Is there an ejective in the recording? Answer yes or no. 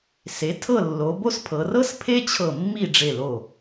no